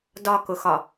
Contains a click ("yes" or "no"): no